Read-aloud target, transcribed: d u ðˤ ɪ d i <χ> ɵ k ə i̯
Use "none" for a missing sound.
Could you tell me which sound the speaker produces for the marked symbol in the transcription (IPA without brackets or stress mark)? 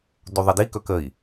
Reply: k